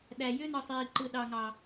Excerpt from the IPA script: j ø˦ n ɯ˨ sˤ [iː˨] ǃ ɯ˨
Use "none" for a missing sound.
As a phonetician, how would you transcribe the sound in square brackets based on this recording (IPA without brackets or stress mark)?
iː˨